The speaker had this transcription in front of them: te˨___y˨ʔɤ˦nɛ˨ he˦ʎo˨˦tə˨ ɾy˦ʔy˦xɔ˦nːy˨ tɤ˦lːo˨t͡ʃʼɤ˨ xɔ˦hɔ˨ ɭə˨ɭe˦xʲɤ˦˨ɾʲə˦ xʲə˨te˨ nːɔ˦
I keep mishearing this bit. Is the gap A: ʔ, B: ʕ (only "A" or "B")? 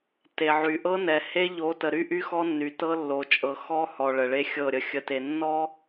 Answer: B